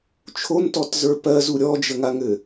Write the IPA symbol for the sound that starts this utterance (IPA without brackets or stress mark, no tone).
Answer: t͡ʃʰ